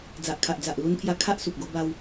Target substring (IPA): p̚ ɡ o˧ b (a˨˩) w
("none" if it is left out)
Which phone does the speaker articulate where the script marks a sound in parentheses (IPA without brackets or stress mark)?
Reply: a˧